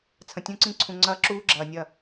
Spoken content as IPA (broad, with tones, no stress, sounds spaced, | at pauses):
t͡sʰ ə̃˨ tʲ ũ˦˨ ǀ ĩ˦ ǀʰ ũ˨ ŋ͡ǀ ɐː˦ ǁ uː˦ ɡ͡ǁ ɐː˨ nʲ ɐ˦˨